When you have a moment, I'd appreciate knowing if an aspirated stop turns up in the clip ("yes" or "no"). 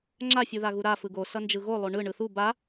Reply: no